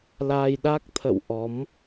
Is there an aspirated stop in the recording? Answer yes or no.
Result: yes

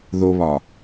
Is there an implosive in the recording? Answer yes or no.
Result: no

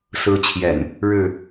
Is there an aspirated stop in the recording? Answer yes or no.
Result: yes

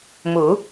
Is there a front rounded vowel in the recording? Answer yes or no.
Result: no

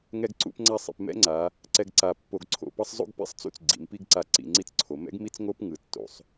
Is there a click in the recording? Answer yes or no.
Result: yes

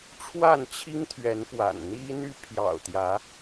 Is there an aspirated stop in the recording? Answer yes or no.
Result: yes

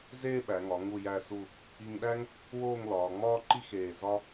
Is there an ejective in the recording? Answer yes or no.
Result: no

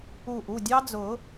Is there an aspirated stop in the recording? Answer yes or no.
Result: no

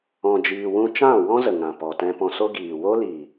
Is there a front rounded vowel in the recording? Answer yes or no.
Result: no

